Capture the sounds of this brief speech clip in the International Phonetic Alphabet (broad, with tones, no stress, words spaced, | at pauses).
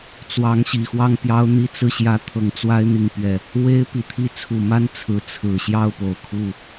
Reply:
t͡swɑ˧˥ŋɕi˨˩xwɑ˥˩ŋ pjɑ˥ʊ̯n̪i˥t͡sɹ̩˥˩ɕjä˥ t̪ʰɤ˧˥ŋt͡swa˥ɪ̯ n̪i˥˧ŋpɥɛ˥˩ | we˥ɪ̯pi˨˩t̪ʰi˥ t͡sʰu˨˩ma˥n t͡sʰɹ̩˧˥ t͡sʰɹ̩˨˩ɕjɑ˥˩ʊ̯ po˨˩ʊ̯kʰu˥˩